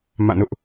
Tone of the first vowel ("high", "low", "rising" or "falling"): falling